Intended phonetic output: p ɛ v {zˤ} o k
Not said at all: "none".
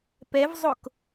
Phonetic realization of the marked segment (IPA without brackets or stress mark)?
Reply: zˤ